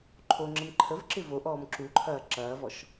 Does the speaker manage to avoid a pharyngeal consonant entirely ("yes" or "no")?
yes